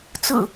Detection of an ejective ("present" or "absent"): absent